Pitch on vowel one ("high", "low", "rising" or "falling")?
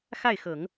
falling